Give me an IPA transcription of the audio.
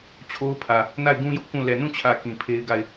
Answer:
t͡ɕʰ o˦ ʊ̯ pʰ ä˨ | n a˦˨ ɪ̯ ɡ ũ˦ j ʊ˦ ʔ k ũ˦˨ l ɛ˨ n ũ˦˨ t͡ɕʰ ä˨ k ĩ˨ pʰ e˦ ɪ̯ ɡ a˦˨ ɪ̯

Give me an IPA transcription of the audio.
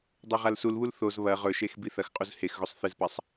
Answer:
dˤ o ʁ a l s u l β u l θ o z β ɐ ʁ ɵ ʃ e x b i θ ɐ x qʼ u z h e x ɣ o sˤ θ ɨ z p a sˤ

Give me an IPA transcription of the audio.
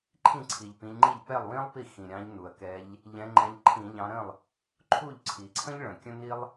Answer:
ǃʰ ĩ˥˩ ǀʰ i˩ ʎ p ĩ˨˦ ʎ ŋ͡ǃ i˥˩ ʎ p ɛ˥˩ lˠ w ĩ˥ lˠ p i˥˩ x ĩ˩ ɾʲ ɑ̃˨˦ ʎ n u˩ ɐ̯ k ɛ˨˦ ʎ | ʎ ɛ̃˨˦ ŋ͡ǃ ɛ̃˨˦ ʎ ǃʰ ĩ˧˩˧ ʎ ɑ̃˨˦ ɾ ə̃˥˩ lˠ | ǃʰ u˥˩ ʎ ǀʰ i˩ ǀʰ ə̃˥ ʎ ɭ ə̃˩ kʲ ə̃˥ n i˥ lˠ

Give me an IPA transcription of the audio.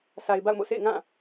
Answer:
s a˨ ɪ̯ b a̰˦˨ ʊ̯ m o̰˦˨ sʰ ḛ˦˨ ɪ̯ ŋ ã˦˨

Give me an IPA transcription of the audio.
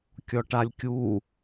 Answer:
kʲ ɔ ʈ a lʲ kʲ u

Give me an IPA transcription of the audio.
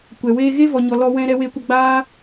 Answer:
kʷ ɛ˨ w eː˧ ɣ e˦ v ɔ˨ ɲ ɔ˨ l ɔ˧ w ɛ̃˧ ɾ ɛ˧ w e˧ kʷ ə˧ ɡ͡b aː˦

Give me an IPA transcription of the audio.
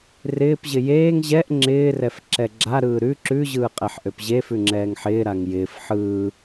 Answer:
r ɪː p ʑ ɪ j eː ŋ ʑ ɛ ʔ ŋ͡ǁ ɪː r ɛ f ǁ ɛ ɡ͡ǁ a ɾ ɯː ɾ ʉ ǁ ʉ ʑ ɯː qʼ ɛ ħ ʔ ø p ʑ e f ʉ ŋ͡ǁ ɛː ŋ ħ ɪː ɾ a ŋ j ɪː f ħ ɯː

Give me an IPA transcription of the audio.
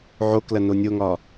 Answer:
ʕ o k l ɐ n o nʲ o ŋ ɒ

